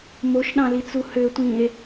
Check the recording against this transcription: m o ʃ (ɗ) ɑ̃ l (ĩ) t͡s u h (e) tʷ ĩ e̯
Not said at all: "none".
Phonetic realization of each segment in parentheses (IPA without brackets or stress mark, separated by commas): ɗ, i, ø